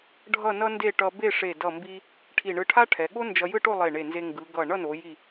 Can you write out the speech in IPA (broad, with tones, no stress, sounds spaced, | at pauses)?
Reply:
ɖʱ ʌ˥˧ n ʌ˥ n d e˥˧ ʈ ʌ˧ b e˥˧ ʂ e˧˩ d ʌ˧˩ m b i˧ | ʈʰ i˧˩ ɳ ɯ˧ ʈʰ a˥ ʈʰ ɛ˩˧ ɠ o˥ n d͡ʒ ʌ˧ j ɯ˥˧ ʈ o˥˧ lˠ e˧˩ ɳ e˧˩ n z e˧ ŋ ɡ ɯ˩˧ ɡ ʌ˧˩ ɳ ʌ˥˧ n o˩˧ j i˧˩